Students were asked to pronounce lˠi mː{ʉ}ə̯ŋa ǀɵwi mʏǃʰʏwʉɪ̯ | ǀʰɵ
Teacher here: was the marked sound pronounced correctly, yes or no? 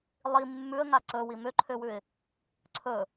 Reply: yes